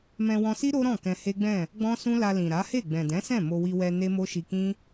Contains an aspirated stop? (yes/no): no